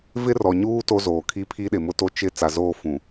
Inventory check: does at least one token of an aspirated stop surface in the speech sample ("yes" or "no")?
yes